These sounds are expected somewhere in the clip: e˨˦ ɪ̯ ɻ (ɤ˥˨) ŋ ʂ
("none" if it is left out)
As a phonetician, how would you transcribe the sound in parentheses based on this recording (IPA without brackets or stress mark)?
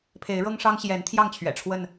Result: ɤ˦